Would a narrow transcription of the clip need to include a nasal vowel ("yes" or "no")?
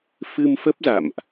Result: no